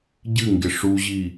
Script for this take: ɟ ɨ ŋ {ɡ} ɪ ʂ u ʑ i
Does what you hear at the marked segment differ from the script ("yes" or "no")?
no